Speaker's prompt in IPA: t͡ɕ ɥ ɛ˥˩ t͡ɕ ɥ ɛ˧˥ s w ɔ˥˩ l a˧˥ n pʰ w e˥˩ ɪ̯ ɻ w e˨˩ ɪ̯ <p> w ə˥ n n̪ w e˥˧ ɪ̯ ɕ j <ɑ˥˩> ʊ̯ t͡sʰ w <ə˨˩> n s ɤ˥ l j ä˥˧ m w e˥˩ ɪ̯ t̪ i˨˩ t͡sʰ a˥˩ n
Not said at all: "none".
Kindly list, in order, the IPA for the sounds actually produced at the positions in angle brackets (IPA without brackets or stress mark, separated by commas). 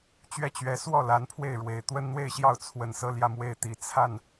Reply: t̪, ɑ˥˩, ə˨˩